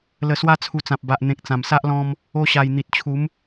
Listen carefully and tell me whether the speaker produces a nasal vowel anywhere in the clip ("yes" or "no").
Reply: yes